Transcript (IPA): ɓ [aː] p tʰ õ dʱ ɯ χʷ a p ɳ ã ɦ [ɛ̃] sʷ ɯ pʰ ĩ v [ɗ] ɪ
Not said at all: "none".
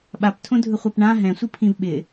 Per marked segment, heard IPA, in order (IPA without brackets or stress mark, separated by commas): a, ɛ̃, ɓ